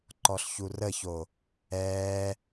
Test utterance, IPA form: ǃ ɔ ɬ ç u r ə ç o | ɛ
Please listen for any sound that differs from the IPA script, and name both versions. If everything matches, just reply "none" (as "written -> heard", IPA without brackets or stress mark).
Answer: none